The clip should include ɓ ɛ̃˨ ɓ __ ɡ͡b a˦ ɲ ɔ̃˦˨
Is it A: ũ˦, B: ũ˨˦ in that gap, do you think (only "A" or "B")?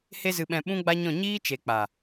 A